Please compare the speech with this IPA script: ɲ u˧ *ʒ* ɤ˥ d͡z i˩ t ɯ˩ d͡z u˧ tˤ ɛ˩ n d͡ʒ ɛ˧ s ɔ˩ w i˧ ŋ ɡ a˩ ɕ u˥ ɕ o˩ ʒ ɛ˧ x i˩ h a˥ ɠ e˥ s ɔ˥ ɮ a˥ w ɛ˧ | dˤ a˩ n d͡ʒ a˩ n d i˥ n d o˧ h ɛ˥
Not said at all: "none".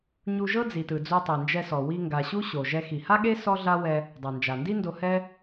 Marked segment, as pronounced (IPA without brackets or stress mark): ʒ